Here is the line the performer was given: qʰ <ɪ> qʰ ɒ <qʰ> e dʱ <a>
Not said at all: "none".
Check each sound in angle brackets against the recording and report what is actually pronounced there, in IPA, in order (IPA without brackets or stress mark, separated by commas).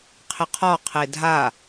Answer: ɪ, qʰ, a